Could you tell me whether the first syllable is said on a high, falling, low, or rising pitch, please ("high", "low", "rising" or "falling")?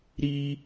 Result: high